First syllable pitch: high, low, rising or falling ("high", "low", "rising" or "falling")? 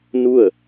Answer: falling